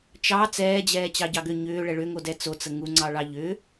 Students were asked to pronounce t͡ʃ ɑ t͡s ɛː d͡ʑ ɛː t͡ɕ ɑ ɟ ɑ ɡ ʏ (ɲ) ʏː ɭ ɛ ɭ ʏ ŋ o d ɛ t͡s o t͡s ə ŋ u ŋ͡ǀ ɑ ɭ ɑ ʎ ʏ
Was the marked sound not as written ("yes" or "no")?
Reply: no